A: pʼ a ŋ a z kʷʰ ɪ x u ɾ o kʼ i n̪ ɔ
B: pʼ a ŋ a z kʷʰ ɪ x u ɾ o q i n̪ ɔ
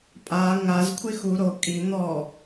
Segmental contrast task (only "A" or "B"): A